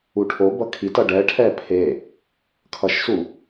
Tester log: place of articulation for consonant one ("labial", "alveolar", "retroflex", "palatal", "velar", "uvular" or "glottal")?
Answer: retroflex